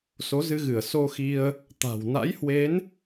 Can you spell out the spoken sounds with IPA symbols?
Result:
s o˨˦ z ɨ˧ ɣ ɨ˧˩ ə̯ s o˧ x i˧ ə̯ | t̪ a̤˨˩ w n a̰˧˥ j h w e˨˦ n

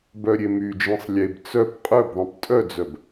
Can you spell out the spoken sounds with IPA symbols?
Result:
b œ ɾʲ e m y d͡ʒ ĩ sˤ lʲ e b t͡s œ p qʼ œ b ðˤ ĩ p tʼ œ d͡z œ b

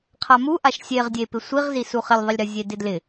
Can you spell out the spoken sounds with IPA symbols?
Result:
qʰ a m u ʔ a ʃ sʲ e ʁ dʲ e p ɪ sʷ i ʁ z i s u χ ɪ lʲ ðˤ ɪ lʲ ɾ ɘ zʲ e d ɪ d l ɪ

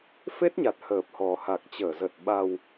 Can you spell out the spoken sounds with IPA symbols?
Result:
f e˦˥ t̚ ɲ a˨˩ t̚ h əː˨˩ p̚ h ɔ˨˩ h a˨˩ k̚ t͡ɕ əː˧˩ z ə˨˩ t̚ ɓ a˨˩ w

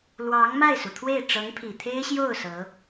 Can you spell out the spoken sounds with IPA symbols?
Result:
l w ɑ˧˥ ŋ m a˥˩ ɪ̯ s u˩ t̪ʰ w e˥˩ ɪ̯ ʈ͡ʂ ɤ˧˥ ŋ pʰ i˨˩ t̪ʰ e˥ ɪ̯ ɕ j o˥˩ ʊ̯ s ɤ˧˥

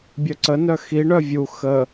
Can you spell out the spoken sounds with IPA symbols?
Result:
bʲ œ ǀ ə n œ x i ɳ œ vʲ u x ə

